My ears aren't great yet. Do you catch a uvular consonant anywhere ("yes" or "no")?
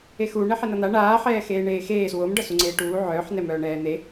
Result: no